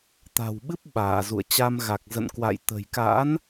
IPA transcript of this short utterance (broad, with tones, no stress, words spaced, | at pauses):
t̪a̤˨˩wɓɨ˦˥p̚ ɓaː˧˩ zṵ˧˨ə̯t͡ɕa˧mɣa˨˩k̚ zə̰˧˨nkwa̰˧˨j t̪ə̤˨˩jka̰˧˥n